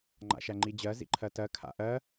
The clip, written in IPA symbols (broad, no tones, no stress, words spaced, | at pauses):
ŋ͡ǃa̰ʃæŋ͡ǃid͡ʑɜ zḭǃʰɜtɜ kʰa̰ʔɜ